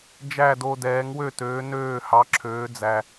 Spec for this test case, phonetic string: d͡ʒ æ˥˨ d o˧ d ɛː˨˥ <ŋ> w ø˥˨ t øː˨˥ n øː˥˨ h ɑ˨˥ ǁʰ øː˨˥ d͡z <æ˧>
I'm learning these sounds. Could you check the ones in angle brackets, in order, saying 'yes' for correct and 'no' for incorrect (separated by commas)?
yes, yes